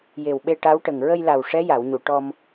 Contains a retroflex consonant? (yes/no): yes